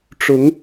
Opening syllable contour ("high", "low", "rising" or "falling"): rising